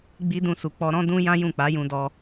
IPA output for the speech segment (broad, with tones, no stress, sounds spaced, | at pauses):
ɡ͡b i˦ d ũ˦˨ s u˧ k͡p ɔ˧ ɾ ɔ̃˦ d ũ˦ j ã˦ j ũ˦˨ k͡p a˨˦ j ũ˧ d ɔ˧